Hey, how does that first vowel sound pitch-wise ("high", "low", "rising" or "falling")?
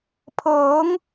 rising